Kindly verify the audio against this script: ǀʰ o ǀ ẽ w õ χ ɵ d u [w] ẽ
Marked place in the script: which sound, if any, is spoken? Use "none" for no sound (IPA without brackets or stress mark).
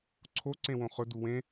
w